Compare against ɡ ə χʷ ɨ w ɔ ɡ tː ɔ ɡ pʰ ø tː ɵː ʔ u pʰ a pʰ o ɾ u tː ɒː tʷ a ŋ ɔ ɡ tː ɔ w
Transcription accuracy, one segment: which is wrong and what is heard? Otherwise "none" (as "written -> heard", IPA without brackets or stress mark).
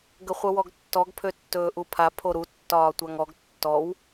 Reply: ɨ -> ə